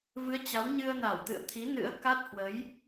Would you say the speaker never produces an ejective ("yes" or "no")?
yes